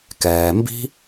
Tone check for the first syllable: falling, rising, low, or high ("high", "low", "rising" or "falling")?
low